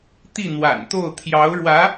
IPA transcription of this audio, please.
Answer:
t̪ i˥˩ n̪ w a̰˨˩ n t̪ o˥˩ ʊ̯ t̪ʰ j ɑ˧˥ ʊ̯ ɻ w ä˧˥

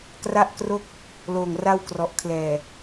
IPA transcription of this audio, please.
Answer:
k r a˥˩ ʔ k r o˥˩ k̚ | l oː˨˩ ŋ r a˥˩ w k r ɔ˨˩ ʔ kʰ l ɛː˨˩

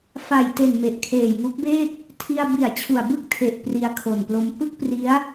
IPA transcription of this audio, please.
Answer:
f a˨˩ j t e˨˩ n m e˨˩ ʔ kʰ eː˨˩ j ŋ u˦˥ k̚ b eː˥˩ k̚ | tʰ i˧ a̯ b i˨˩ a̯ t͡ɕʰ u˨˩ a̯ b ɯ˥˩ k̚ tʰ e˨˩ ʔ p r i˧ a̯ kʰ o˨˩ n p l o˧ m p ɯ˥˩ k̚ p r i˦˥ a̯

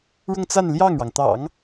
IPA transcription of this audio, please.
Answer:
ɻ ʊ˥˧ ŋ t͡s a˥˧ n l j ɑ˥˩ ŋ ɻ ɑ˩ ŋ t̪ ɑ̰˨˩˦ ŋ

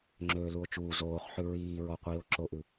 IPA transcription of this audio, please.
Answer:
ŋ͡ǁ øː l u o̯ t͡ʃ uː z oː χ ħ ʉ ɹ iː ɹ ɔ qʷ iː o̯ ǁ o ʔ ʉ

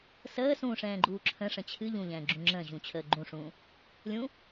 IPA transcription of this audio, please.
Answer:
s əː s ũː ʂ ɛ̃ː ɡ͡ǃ uː ǁʰ ə̃ ʂ ə̃ t͡ɕʰ ɨ ʎ ũ ʎ ɛ̃ː ɡ͡ǁ ũ ŋ͡ǁ ə̃ː ʑ ũ t͡ɕʰ əː ɡ͡ǃ ũ ʂ ũː | lʲ ũ

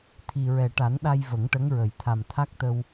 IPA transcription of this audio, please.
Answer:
t̪ʰ i˨˩ ɹ ɛ˨˩ ʈ a˨˩˦ n ɗ a˧ j v ə˨˩˦ ŋ ʈ ə˧˥ ŋ ɹ ə˨˩ j t̪ʰ a˨˩ m t̪ʰ a˦˥ k̚ t̪ ə˧ w

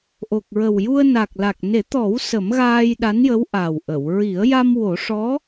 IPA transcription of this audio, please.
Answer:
ʔ o˨˩ k̚ ɹ ə˨˩ w j u˧ ə̯ n a˨˩ k̚ l a˨˩ k̚ n e˨˩˦ t̪ ɔ˨˩˦ w s ə˨˩˦ m ɣ aː˧ j ɗ a˧˥ n j ə˧˥ w ʔ a˨˩ w ʔ ə˨˩˨ w ɹ i˨˩˦ ə̯ j a˧ m w o˨˩˦ ʂ ɔ˧˥

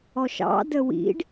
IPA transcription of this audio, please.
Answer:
ɔ ʃ ɑ̰ d ə w ḭ ɖ

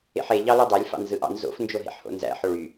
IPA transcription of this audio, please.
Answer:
ḛ ħ e ʎ ɑ l y dˤ æ lʲ f ɑ̰ n z ɯ ʔ ɑ̰ n z o̰ f n d͡ʒ o ɦ ḛ ħ h o̰ n z æ̰ ħ o ɭ y

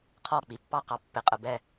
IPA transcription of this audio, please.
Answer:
qʰ ɔ˦˨ k͡p i˨ pː ɑ˦ q ɑ˨ pː ɪ˨˦ qʼ ə˨ b ɛ˦˨

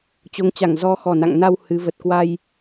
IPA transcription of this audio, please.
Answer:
t͡ɕ o˨˦ ŋ t͡ɕ a˧˩ ŋ z ɔ˨˦ x ɔ˨˩ n a̰˧˨ ŋ n a˧ w h ɨ˨˦ v ə˨˩ t̚ k w a˧ j

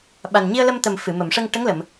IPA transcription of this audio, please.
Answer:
ɓ a˨˩ n ɲ i˧ ə̯ l ə˧ m t̪ ə˨˩ m f ɨ˨˩˨ m ə˨˩˨ m ʂ ə˧ ŋ ʈ ə˧˥ ŋ l ə˨˩˨ m

